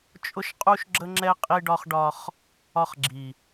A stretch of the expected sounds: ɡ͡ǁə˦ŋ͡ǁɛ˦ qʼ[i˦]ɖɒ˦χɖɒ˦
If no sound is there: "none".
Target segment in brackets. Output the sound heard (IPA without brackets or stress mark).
i˦